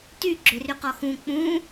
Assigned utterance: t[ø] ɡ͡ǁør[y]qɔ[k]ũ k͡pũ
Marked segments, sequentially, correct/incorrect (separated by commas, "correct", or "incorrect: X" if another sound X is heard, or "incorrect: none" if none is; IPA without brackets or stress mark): incorrect: y, correct, incorrect: x